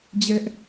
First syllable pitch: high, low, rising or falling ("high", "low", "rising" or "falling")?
high